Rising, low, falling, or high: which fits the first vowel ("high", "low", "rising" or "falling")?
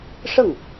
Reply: falling